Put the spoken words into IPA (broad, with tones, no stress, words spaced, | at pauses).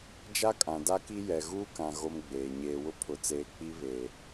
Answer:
d͡ʒa˦kʼã˨da˦ki˦ jɛ˨ ɣuː˦kã˨ ɣo˦mɡ͡beː˨ ɲeː˨wʊ˦ pʰʊ˨t͡seː˨ k͡pi˦ βeː˨